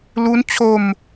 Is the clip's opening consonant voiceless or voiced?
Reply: voiced